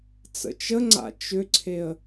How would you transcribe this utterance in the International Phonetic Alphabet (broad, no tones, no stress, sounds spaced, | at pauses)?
t͡s ə̰ t͡ʃ ə ŋ͡ǀ a̰ t͡ʃ ʏ ǀʰ e ə̯